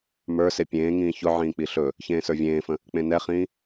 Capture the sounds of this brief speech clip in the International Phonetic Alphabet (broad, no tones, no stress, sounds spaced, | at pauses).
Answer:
m ə˞ s e pʲ ẽː ŋ ĩː ç ʊ ʕ ĩː k͡p i ɬ ɵ | ç ẽː s ə˞ vʲ ẽː f ə̃ | k͡p ẽ n ɛ χ ĩː